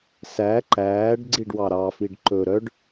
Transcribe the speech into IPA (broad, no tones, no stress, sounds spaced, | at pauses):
s æ ǃ æː ɖ ɡ͡ǀ i ɖ w ɑ ɾ ɑ f i ɖ ǃ ɵ ɾ œ ɖ